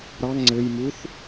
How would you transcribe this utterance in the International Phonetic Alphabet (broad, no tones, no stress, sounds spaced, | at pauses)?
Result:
ɾ ɑ ŋ ŋ͡ǀ ɘ j m u θ